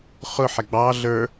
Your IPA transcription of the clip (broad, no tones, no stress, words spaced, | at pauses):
χʊħɛ ɡ͡bɑ ɮə˞